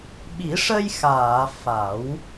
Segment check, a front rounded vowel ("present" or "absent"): absent